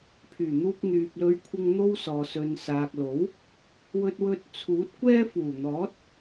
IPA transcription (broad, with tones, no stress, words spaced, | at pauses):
pʰyː˨˩n̪uː˧k̚ n̪yː˨p̚lɵ˧ɥkʷʰɪ˧ŋ n̪o˥wsɔː˨ sɵ˨nsaː˨k̚lo˨˥w | wɵ˧t̚wɵ˧t̚t͡sʰuː˨˥t̚ kʷɛː˥fuː˨˩ n̪ɔː˨˥t̚